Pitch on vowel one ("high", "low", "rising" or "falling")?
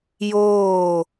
falling